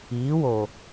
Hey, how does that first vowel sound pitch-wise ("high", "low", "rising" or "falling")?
rising